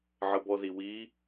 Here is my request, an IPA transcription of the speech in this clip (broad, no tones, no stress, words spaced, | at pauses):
ʕəbɔðiwi